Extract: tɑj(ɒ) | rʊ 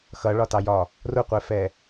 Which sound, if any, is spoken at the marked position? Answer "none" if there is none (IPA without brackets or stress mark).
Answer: ɒ